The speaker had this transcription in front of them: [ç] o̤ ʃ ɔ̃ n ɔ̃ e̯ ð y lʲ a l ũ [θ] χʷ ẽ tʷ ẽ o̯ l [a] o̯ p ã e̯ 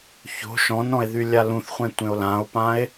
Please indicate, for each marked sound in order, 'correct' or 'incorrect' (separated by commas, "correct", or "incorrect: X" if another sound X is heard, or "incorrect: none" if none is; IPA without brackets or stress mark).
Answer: correct, correct, incorrect: ã